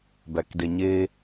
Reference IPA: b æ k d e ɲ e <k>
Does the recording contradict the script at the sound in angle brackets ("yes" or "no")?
yes